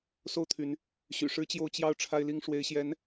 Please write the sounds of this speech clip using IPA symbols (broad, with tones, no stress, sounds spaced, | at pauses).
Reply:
s o˥˩ ʊ̯ t̪ʰ y˧˥ n | ɕ y̰˨˩ ʂ ɻ̩˥ t͡ɕ j o˥˧ ʊ̯ t͡ɕ j ɑ˥˩ ʊ̯ ʈ͡ʂʰ a˥ ɪ̯ l i˥ ŋ ʂ w e˧˥ ɪ̯ ɕ j ɛ˧˥ n